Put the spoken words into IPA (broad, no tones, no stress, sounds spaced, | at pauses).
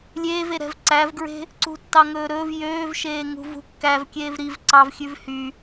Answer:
lʲ eː v e ɾ ɛ̤ v ǀ æ v ɡ ɹ e̤ | ǀ ṳ tː ɑ ŋ ɵː ɾ ɵː v j øː v ʃ eː ŋ ṳ v ṳ kː æ v kʲ eː v ɾ i v ǀ ɑ v xʲ ʉ v h y